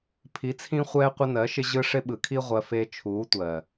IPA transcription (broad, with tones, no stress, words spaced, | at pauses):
pʰi˨˦t͡sʰĩ˧χʷɛː˧ qʷɪ˧nɜ˨˦ʃɪ˧ ʑɯ˧ ʂɪ˧ɓɯ˨kʰi˧ ʁʷɜ˧fe˧ t͡ʃʰuː˨˦tʷɜ˨